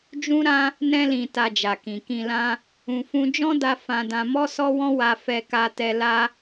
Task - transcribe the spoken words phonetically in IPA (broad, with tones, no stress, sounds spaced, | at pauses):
d͡ʒ ũ˦ ɾ ã˦ | n ɛ̃˧ l ĩ˨ t a˧ d͡ʒ a˨ k ĩ˨ k ĩ˨ l ã˧ | ũ˧ f ũ˦ d͡ʒ ɔ̃˦ d a˧ f ã˧ d ã˧ m ɔ˦ s ɔ˦ w ɔ̃˦ w a˧ f ɛ˧ k a˧ t ɛ˧ l a˦